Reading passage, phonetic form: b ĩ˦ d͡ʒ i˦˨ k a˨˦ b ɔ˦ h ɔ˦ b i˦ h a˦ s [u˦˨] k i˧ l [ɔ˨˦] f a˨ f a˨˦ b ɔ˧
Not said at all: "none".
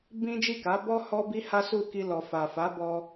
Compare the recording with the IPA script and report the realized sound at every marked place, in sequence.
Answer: u˦˨, ɔ˨

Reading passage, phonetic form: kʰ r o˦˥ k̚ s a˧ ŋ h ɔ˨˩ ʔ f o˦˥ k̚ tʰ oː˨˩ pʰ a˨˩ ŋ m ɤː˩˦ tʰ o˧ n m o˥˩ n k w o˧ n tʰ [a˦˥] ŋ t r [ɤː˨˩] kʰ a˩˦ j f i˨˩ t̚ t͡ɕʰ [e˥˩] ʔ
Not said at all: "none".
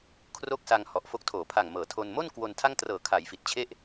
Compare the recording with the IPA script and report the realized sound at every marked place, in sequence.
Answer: a˥˩, ɤː˨˩, e˥˩

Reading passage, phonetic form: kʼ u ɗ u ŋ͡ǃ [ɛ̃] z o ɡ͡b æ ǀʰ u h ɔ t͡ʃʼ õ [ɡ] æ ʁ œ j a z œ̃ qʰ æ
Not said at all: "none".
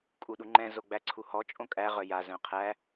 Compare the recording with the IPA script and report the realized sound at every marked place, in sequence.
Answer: ɛ̃, kʼ

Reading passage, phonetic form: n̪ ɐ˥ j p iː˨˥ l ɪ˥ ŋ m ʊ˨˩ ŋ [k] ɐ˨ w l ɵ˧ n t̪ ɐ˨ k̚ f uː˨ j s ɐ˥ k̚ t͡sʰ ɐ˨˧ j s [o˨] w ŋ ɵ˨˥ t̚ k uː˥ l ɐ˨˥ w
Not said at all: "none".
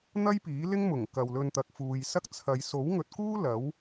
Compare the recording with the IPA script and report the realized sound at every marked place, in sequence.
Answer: k, o˨˥

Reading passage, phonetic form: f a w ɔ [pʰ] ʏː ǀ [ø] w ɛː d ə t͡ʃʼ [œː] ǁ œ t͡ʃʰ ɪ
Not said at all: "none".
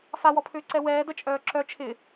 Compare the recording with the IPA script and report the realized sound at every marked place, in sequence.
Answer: pʰ, ɛ, œː

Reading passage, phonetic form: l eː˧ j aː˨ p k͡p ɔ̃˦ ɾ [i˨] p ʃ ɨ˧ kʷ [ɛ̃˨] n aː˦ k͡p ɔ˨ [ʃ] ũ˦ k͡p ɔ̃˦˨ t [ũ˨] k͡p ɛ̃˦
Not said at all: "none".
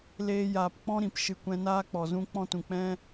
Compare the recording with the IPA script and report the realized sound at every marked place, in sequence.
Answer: ĩ˨, ɛ̃˦, z, ũ˨

